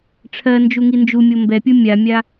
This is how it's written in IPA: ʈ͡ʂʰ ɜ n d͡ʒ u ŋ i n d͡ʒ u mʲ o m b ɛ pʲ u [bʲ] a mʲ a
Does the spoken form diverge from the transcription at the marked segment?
yes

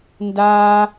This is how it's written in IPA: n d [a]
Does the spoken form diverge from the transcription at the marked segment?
no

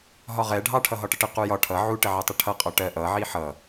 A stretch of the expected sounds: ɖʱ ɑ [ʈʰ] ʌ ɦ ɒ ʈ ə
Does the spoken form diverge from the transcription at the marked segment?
no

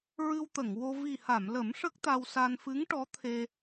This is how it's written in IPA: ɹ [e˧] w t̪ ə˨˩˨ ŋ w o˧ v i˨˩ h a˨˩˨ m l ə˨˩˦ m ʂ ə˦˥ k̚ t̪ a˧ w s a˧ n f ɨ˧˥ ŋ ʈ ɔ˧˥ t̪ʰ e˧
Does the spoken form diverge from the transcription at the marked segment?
yes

